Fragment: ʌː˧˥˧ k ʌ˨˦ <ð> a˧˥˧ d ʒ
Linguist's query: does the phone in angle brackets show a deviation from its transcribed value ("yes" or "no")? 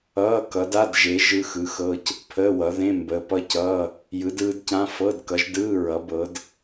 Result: yes